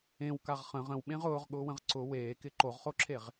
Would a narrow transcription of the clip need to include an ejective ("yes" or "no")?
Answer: no